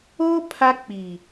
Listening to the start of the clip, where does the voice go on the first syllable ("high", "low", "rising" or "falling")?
high